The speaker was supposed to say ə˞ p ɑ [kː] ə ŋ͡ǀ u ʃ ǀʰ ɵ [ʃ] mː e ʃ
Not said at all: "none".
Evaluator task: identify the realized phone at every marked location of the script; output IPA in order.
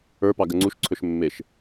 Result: ɡ, ʃ

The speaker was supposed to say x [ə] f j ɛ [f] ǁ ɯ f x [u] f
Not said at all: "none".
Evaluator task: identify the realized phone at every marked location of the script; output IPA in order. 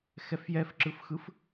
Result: ɛ, f, ɯ

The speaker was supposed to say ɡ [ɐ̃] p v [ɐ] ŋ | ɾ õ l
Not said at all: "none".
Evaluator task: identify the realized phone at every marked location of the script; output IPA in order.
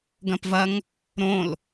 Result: ɐ̃, ɐ

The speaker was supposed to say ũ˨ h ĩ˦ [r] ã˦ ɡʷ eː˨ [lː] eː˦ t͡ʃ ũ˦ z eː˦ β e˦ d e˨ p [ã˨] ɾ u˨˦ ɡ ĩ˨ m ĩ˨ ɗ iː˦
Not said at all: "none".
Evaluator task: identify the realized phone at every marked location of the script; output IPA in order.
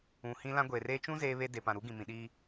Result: l, r, ã˨

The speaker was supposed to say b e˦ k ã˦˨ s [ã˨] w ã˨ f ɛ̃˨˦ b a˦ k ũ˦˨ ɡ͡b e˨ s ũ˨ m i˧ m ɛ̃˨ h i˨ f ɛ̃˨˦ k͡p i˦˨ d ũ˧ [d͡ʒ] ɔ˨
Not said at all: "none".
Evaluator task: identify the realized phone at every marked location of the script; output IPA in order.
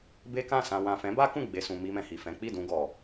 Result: ã˨, ɡ

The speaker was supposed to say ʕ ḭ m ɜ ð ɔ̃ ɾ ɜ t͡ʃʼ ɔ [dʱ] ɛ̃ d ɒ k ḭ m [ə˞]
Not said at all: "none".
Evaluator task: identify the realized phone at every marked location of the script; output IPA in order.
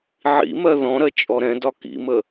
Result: ɾ, ə

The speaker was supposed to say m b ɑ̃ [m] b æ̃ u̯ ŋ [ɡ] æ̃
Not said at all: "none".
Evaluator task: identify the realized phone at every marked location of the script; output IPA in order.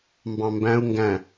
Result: m, ɡ

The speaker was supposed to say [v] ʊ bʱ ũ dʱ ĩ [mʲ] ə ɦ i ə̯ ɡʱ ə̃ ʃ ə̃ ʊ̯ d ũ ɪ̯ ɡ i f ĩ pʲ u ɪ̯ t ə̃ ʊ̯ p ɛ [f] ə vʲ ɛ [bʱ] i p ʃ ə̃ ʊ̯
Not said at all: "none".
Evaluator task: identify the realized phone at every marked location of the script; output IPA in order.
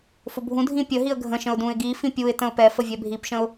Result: f, pʲ, f, bʱ

